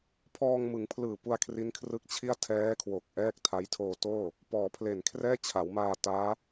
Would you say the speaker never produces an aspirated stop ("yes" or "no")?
no